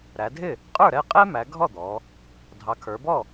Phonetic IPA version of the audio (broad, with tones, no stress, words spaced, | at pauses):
ɾæ˩˧dʱɪ˥˩ | qʼə˞˥˩ɾɛ˥˩qʼɛ˥mæ˩˧ ɡʱɔ˥˩d̪ɔ˩˧ | dʱɑ˩˧kʰə˞˩˧bɔ˥˩